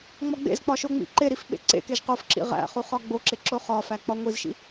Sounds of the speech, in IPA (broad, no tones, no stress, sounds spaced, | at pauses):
ŋ͡m ɒ ɡ͡b ḛ z k͡p ɒ ʃ o ŋ͡m ḭ ǃ e ɾ i f ɓ ḛ ǀ ḛ k e ʒ q o f ǁ ḭ ʁ æ̰ χ u χ ɒ ɡ͡b o ǁ e ǁ o χ ɒ f æ k͡p ɒ ŋʷ i z ʃ ḭ